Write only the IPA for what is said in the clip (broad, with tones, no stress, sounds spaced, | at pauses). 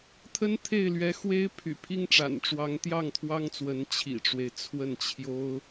t̪ʰ ə˥ n t̪ʰ e˥˩ ɪ̯ l ɥ ɛ˧˥ x w e˥ ɪ̯ pʰ y̰˨˩ pʰ i˥ ŋ ʈ͡ʂ a̰˨˩ n ʈ͡ʂ w ɑ˧˥ ŋ t̪ j ɑ˥˩ ŋ t̪ʰ w ɑ˥ ŋ t͡s w ə˧˥ n t͡ɕʰ ḭ˨˩ ʈ͡ʂ w e˦ ɪ̯ t͡sʰ w ə˥˩ n t͡ɕʰ j o˥ ʊ̯